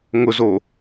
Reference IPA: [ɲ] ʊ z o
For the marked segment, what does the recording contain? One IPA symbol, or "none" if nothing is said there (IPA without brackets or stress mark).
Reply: ŋ